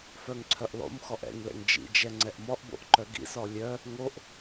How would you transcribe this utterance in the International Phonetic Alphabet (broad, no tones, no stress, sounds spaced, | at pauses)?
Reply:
f œ ŋ ǀʰ œ ʔ lˠ o̰ m x ɔ ʔ ɛ̰ ŋ l ɛ̰ ŋ d͡ʒ ḭ d͡ʒ ɛ ŋ͡ǀ ɛ ʔ m ɔ ʔ b o̰ ʔ ǃ œ ɡ ḭ s ɔ lʲ œ | ŋ o ʔ